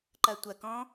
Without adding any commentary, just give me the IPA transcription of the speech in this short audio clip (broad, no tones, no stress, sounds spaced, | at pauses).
ǃ ɐ tʷ ɐ k ɔ̃